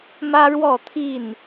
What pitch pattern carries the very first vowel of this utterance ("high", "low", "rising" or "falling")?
high